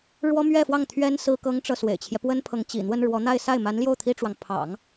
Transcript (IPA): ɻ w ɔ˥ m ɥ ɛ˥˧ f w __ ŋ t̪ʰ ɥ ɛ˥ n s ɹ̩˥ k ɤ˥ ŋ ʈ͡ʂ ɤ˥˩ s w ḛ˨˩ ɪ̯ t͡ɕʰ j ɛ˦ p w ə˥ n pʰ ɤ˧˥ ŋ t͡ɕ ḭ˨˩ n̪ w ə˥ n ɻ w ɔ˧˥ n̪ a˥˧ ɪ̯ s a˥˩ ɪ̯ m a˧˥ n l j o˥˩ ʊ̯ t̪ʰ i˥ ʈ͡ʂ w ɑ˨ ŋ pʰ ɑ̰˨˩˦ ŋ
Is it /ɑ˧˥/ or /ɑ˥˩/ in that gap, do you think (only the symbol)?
ɑ˥˩